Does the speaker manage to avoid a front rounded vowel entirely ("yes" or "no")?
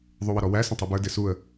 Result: yes